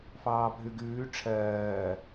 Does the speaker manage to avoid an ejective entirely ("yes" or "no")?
yes